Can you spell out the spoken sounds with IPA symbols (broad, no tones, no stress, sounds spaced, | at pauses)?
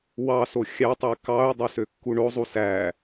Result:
w ɑ s o xʲ ɑ tˤ e k ɑ ʊ̯ dˤ o s ø kː u ɳ o zˤ u s æ